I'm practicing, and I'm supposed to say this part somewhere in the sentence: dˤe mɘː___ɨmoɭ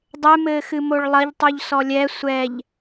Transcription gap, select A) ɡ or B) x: B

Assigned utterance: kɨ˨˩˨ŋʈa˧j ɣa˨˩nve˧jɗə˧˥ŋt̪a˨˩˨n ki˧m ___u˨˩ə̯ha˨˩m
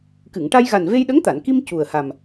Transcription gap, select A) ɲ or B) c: B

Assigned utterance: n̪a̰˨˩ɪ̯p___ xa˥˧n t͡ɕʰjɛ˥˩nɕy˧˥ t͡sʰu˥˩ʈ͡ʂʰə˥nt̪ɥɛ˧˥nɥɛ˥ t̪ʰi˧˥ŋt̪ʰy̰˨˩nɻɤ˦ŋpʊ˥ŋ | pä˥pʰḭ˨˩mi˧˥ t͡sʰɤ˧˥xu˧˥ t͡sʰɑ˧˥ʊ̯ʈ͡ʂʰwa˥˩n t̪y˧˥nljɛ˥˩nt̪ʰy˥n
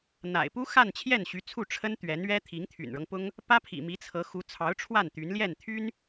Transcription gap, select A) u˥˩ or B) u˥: B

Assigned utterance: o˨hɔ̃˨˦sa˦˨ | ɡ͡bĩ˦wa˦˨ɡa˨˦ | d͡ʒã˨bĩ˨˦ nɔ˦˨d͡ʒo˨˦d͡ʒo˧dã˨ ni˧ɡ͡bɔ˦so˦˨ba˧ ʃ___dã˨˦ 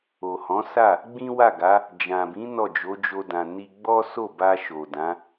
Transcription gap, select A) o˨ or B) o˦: A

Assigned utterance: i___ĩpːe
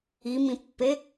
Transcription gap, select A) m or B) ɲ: A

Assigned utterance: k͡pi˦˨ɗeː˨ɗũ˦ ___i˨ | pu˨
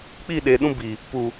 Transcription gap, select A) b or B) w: A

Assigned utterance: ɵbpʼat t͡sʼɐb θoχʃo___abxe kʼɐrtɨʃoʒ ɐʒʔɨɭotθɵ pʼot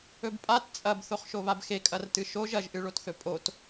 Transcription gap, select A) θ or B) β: B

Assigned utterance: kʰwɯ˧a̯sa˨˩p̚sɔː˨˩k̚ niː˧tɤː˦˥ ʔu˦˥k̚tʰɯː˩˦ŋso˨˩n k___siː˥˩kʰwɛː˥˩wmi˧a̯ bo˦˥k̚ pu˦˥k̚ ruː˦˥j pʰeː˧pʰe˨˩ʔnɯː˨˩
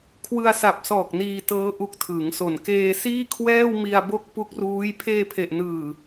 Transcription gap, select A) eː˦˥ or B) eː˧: B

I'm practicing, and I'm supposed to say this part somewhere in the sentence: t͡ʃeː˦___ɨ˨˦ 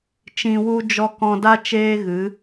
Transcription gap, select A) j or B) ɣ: B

